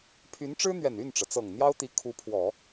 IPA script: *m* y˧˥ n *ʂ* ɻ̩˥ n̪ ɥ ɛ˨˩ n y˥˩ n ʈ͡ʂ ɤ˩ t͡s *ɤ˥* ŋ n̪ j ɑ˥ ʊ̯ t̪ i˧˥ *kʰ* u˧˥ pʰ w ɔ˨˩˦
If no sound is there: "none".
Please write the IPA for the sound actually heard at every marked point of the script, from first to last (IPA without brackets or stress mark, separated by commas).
pʰ, ʈ͡ʂ, ɤ˨˩, kʰ